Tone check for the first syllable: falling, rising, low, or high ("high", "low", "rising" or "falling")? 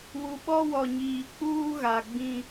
low